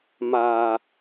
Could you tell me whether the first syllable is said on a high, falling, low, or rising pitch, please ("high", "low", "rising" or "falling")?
low